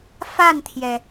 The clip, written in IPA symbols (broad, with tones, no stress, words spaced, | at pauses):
fa˥˩nt̪ʰjɛ˩